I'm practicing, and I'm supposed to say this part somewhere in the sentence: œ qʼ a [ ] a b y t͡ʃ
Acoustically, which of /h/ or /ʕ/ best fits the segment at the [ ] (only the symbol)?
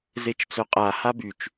h